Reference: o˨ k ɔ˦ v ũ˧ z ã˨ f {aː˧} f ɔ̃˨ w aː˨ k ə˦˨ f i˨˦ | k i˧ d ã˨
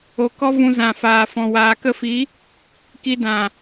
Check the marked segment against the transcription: incorrect: aː˨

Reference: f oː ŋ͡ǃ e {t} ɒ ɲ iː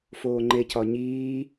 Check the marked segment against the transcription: incorrect: c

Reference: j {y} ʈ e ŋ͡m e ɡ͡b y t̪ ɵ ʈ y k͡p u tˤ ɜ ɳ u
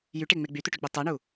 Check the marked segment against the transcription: correct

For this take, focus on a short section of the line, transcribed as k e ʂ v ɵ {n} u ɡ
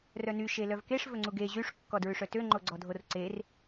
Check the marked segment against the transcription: incorrect: ŋ͡ǀ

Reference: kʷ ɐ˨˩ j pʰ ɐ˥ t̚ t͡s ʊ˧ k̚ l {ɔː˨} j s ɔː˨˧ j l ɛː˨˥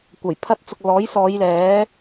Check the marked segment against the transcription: incorrect: ɔː˨˥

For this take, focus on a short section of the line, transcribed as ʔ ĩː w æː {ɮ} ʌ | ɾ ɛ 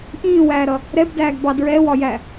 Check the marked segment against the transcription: incorrect: ɾ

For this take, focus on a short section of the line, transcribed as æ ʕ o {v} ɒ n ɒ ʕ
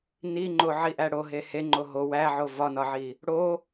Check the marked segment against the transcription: correct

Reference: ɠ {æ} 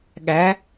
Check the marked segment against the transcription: correct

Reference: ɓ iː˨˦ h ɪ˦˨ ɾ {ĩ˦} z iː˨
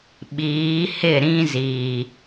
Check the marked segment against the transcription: correct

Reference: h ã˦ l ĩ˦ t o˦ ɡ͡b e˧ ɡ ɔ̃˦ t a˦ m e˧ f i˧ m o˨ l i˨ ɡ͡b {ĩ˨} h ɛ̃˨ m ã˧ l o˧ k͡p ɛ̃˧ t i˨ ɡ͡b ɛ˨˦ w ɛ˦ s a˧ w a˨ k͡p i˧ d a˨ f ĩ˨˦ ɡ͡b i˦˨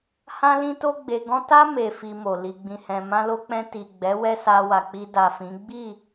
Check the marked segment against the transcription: correct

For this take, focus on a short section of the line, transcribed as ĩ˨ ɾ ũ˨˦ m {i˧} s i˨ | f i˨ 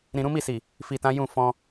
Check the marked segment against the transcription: incorrect: i˦˨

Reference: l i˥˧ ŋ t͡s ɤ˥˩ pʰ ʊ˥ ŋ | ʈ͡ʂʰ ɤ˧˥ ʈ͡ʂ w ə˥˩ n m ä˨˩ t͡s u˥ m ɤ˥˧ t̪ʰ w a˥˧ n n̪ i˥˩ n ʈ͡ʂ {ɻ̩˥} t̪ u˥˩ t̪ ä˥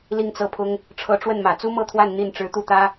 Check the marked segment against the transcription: incorrect: ɻ̩˧˥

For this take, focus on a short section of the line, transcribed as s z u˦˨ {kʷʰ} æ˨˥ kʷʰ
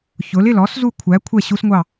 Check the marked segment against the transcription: correct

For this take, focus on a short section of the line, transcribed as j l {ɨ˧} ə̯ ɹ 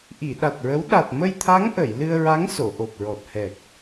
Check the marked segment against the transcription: correct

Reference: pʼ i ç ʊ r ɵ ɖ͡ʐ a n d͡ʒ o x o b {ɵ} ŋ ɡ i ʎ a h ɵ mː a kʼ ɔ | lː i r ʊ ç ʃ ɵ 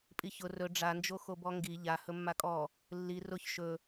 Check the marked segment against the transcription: incorrect: ɔ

